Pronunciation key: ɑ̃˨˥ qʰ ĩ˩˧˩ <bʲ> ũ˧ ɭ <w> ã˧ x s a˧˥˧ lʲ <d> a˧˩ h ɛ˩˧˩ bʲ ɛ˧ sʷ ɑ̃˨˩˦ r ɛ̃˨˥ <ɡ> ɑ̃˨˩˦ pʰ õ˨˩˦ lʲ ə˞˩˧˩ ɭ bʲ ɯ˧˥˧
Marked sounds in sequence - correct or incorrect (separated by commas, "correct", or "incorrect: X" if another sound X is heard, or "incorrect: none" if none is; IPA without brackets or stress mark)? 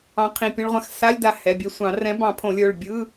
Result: incorrect: pʲ, incorrect: ʁʷ, correct, incorrect: b